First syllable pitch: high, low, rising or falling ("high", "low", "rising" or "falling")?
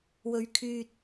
low